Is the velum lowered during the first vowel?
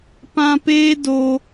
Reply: yes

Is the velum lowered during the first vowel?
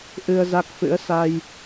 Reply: no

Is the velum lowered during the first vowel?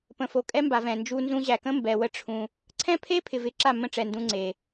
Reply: yes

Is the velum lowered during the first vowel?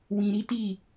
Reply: yes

